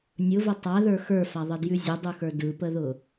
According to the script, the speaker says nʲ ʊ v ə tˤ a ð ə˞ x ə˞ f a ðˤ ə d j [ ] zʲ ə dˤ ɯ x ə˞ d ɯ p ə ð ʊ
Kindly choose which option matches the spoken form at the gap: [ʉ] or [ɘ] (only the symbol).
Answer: ʉ